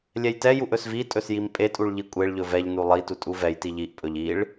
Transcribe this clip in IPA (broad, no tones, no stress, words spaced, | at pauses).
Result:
lʲɛjtɛjuʔ ɵsvitʼɵs jimpʼetʼuɭ ʎikʷʼeɭʎɵ vɛʎnu lˠitu tʼuvɛjti ʎiʔpʼɵʎ iɭ